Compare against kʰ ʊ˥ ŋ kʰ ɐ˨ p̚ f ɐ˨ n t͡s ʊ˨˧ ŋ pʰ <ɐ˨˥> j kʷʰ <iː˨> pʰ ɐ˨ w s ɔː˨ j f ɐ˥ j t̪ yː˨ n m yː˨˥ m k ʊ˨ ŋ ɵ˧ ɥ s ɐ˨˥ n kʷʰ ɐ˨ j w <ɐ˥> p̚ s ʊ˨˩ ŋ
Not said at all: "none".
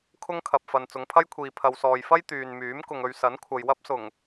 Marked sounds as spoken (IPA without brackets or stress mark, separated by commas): ɐ˥, iː˨, ɐ˥